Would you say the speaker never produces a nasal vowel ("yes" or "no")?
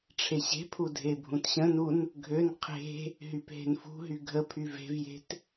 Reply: no